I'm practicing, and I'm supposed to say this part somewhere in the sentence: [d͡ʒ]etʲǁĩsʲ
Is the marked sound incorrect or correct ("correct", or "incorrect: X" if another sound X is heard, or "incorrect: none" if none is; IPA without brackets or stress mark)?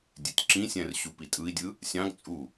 incorrect: dʲ